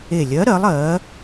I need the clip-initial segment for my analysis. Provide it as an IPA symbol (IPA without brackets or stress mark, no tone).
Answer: e